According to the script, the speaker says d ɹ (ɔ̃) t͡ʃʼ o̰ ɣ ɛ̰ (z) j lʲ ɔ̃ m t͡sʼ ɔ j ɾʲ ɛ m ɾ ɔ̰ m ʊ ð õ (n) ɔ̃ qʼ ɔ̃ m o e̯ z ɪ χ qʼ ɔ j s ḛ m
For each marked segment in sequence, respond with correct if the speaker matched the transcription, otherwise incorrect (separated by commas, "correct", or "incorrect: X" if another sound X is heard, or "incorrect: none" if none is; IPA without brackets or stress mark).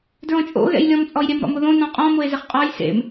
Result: correct, incorrect: none, correct